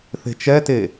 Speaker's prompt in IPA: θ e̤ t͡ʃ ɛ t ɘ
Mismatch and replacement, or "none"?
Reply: ɘ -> e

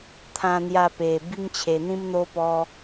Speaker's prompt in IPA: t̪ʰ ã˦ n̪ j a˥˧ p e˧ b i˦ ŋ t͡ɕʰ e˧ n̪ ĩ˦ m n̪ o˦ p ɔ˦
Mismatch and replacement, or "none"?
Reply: none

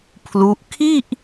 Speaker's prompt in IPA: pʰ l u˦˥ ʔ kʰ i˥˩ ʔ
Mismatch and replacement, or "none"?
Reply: none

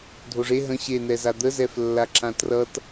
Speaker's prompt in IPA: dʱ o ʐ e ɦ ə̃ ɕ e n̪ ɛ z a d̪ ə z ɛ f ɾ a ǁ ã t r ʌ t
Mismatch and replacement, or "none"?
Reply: ɾ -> lː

